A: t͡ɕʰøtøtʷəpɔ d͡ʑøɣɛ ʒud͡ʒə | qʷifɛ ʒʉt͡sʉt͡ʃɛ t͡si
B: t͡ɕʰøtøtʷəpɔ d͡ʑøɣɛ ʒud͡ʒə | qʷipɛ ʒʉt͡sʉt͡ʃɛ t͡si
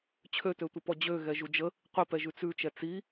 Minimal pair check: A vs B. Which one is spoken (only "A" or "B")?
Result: B